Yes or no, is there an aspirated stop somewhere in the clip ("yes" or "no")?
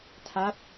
yes